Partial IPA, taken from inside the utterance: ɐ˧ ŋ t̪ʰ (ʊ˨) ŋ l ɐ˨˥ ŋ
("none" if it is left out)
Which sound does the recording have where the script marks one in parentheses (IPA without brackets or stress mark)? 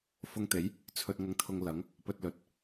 ʊ˧